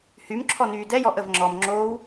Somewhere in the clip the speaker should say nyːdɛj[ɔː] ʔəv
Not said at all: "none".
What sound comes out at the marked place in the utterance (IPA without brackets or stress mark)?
ɔ